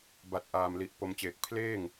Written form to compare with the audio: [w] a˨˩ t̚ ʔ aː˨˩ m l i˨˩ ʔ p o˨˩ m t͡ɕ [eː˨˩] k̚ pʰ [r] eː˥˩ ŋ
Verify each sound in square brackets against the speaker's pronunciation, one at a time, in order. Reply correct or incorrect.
incorrect: b, correct, incorrect: l

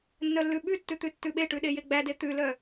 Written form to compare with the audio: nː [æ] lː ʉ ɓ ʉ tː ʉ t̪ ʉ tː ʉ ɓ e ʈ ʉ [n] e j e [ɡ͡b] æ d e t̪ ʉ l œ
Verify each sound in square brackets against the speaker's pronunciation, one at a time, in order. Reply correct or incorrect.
incorrect: œ, incorrect: ɗ, correct

